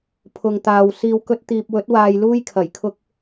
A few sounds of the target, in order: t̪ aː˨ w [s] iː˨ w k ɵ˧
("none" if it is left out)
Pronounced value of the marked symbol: s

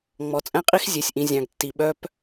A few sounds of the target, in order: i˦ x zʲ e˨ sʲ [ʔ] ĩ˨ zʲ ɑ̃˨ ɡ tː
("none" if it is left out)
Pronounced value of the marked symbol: ʔ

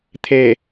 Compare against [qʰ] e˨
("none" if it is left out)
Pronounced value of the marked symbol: t̪ʰ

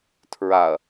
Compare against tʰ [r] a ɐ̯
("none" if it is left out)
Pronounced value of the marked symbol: ɹ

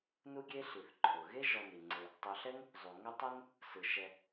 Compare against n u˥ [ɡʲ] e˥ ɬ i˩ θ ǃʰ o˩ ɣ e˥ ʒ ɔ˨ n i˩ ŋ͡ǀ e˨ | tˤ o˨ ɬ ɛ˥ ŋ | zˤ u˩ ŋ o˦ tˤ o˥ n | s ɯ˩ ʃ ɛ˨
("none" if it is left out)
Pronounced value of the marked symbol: ɡʲ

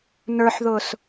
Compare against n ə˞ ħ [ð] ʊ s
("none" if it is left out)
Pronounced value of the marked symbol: ð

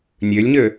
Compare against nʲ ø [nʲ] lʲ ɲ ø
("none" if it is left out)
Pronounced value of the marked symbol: none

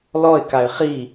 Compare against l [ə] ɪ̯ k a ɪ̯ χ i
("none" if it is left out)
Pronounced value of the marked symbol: ɔ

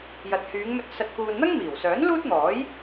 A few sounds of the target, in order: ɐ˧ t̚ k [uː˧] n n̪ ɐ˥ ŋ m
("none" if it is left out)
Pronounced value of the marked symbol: uː˧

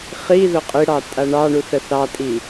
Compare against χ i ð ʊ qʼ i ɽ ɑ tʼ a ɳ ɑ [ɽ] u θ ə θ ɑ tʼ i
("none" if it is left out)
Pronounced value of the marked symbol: ɳ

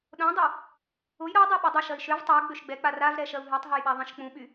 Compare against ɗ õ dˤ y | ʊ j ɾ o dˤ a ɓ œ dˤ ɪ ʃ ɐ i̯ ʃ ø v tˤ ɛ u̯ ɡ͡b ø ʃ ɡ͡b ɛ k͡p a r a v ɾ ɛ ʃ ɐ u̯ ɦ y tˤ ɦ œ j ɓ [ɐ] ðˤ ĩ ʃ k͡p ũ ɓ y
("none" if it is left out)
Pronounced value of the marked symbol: a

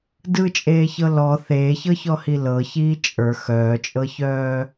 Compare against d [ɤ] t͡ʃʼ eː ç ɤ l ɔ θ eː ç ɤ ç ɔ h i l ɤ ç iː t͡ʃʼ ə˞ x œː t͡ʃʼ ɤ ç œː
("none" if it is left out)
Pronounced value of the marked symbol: ɯ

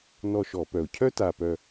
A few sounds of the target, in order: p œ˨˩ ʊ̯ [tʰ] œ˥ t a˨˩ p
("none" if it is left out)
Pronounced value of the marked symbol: cʰ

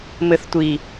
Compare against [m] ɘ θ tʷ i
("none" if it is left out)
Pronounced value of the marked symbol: m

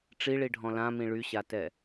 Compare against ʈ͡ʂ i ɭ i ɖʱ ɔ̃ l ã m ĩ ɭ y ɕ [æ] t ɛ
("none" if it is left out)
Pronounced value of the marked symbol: a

